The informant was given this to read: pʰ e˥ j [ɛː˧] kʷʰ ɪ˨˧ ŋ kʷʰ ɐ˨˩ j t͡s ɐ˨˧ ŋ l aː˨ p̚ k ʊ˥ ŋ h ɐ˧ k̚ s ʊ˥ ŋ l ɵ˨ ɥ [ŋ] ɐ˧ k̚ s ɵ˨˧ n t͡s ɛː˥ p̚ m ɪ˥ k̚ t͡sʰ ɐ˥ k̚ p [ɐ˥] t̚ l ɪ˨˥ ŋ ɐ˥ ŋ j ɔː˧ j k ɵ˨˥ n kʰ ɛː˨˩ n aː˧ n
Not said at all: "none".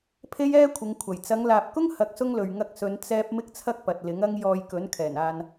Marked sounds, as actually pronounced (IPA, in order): ɛː˥, ŋ, ɐ˨

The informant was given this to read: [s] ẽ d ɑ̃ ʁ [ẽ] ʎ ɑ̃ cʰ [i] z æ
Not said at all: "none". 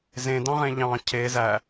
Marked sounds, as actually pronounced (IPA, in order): z, ẽ, e

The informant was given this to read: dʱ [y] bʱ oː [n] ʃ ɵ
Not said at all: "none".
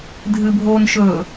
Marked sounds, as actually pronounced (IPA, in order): ɨ, n

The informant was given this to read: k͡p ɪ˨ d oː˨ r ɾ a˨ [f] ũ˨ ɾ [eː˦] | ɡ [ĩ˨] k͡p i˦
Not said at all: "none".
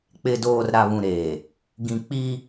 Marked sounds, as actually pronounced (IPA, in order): β, eː˨, ĩ˨

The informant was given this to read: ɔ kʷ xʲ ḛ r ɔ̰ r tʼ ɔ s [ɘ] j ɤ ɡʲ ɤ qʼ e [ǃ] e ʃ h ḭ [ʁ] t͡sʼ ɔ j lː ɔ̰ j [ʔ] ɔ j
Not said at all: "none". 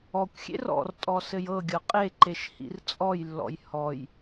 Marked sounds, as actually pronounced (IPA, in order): ɘ, ǃ, r, h

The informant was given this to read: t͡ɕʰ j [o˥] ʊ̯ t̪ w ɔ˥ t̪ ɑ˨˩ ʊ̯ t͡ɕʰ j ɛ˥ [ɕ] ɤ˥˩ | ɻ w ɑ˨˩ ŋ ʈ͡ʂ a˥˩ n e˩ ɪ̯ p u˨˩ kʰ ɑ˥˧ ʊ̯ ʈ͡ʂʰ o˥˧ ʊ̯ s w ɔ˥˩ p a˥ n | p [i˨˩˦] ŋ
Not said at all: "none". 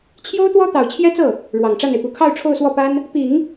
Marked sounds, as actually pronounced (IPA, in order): o˥, t͡s, i˨˩˦

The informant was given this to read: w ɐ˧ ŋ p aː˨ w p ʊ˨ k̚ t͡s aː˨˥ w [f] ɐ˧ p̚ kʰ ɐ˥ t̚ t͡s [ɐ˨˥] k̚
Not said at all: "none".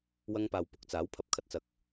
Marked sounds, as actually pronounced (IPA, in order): pʰ, ɐ˧

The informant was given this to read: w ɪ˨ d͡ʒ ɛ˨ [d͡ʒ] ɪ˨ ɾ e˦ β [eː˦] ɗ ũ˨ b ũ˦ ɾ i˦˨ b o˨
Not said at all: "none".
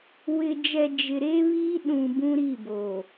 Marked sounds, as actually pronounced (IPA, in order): d͡ʒ, iː˦

